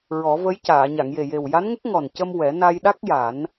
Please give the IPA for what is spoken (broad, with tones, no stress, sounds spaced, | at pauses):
ɹ ɔ˨˩˦ v ə˧˥ j c aː˨˩˨ ɲ a˨˩˨ ŋ j e˨˩ j e˨˩ w j a˧˥ n ŋ ə˦˥ k̚ ŋ ɔ˨˩ n c ə˧ m w ɛ˨˩˦ n a˧ j ɗ a˦˥ k̚ j a˨˩˦ n